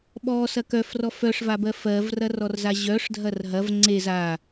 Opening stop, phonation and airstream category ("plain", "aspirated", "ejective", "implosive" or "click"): implosive